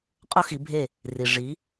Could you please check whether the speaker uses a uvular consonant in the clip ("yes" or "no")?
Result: yes